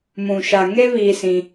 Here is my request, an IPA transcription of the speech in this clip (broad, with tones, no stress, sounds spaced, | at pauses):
m ũ˨ ʃ a˨ ŋ e˦ β iː˦ s ĩ˦